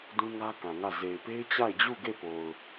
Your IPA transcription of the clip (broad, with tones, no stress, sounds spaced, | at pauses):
d ũ˦ ŋ ä˦ k ã˨ ŋ ä˦˨ z e˨ ɪ̯ p e˦ ɪ̯ t͡ɕ a˦˨ ɪ̯ d͡ʑ u˦˨ ɡ e˦˨ p o˨ ʊ̯